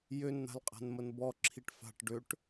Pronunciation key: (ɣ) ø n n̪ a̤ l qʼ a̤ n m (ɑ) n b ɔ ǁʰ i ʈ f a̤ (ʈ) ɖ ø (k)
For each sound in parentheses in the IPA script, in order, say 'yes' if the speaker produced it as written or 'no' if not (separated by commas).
no, no, yes, no